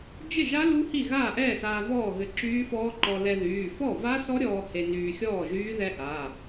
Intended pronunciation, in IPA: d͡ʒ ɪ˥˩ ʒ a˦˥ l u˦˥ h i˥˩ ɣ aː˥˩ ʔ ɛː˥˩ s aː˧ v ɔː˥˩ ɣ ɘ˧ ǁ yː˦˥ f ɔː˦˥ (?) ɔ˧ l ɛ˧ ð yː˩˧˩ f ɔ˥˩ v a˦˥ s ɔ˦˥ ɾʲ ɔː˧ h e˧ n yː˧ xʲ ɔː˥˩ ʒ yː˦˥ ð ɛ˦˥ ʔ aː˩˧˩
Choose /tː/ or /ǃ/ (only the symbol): ǃ